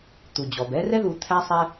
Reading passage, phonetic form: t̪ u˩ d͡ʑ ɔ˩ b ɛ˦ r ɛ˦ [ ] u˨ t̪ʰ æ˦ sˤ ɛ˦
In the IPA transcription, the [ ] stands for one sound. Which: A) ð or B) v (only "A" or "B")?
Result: A